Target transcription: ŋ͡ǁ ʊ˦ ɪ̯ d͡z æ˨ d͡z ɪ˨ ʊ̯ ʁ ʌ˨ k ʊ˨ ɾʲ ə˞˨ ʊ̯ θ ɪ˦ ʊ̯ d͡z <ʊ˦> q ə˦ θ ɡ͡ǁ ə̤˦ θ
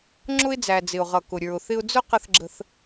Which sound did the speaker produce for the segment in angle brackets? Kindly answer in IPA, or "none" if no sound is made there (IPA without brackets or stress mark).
ʊ˦